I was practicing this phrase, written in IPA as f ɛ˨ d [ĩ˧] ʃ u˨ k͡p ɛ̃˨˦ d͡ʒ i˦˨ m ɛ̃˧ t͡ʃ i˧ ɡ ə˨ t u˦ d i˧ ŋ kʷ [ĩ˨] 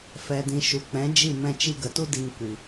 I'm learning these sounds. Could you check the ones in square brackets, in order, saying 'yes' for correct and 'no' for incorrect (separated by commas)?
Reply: no, no